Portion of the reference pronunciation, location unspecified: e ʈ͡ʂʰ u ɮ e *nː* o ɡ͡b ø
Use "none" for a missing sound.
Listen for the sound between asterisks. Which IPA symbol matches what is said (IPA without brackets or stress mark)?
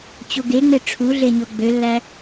ɲ